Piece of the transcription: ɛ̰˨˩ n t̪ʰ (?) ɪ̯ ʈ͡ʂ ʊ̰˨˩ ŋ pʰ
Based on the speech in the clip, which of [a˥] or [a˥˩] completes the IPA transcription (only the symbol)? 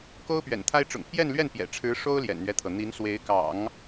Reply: a˥